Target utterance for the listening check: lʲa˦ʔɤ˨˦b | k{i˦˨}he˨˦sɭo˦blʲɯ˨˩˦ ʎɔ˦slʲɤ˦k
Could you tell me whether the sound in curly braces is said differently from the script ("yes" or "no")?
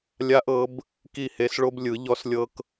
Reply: no